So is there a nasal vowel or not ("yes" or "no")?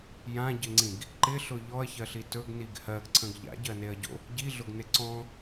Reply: yes